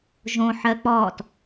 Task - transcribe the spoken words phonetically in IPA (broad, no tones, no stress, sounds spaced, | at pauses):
ʒ õ ħ ɜ k͡p ɔː t